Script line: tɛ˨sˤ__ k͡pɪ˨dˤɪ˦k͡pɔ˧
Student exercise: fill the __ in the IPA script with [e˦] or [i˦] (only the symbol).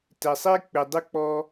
e˦